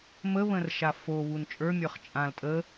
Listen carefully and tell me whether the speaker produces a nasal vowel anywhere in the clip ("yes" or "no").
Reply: yes